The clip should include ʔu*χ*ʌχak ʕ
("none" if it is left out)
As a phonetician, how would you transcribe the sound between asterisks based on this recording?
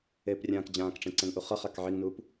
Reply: χ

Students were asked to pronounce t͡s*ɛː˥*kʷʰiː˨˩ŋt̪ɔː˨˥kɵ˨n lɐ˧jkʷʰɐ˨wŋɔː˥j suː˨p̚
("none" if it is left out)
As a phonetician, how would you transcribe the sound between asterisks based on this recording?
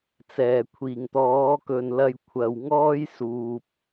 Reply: ɛː˨˩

